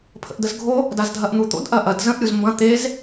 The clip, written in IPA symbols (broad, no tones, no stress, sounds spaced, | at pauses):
pʰ ə̰ ʔ d ə z ɡʱ o | d a z dʱ ɐ ʔ n̪ u t̪ o̰ d ʔ ɐ ʔ ɐ d z ə̃ ʔ ɾʲ u z m b ɐ̃ t̪ e z